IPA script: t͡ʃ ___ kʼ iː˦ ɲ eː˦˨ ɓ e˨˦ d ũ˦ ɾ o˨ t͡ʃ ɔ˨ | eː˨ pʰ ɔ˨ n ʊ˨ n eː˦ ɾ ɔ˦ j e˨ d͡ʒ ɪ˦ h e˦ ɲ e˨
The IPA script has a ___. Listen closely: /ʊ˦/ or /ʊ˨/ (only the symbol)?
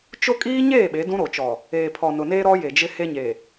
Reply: ʊ˦